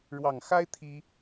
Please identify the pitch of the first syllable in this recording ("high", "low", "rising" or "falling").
low